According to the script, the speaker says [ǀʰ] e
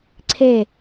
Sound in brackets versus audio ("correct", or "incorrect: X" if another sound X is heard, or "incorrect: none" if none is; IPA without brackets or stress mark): correct